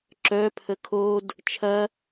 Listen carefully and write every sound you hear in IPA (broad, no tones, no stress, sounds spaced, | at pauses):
ǁ œ pʰ ə kʰ o d | t͡ʃʰ ɐ